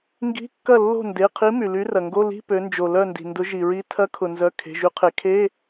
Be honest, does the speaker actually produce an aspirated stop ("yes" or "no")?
yes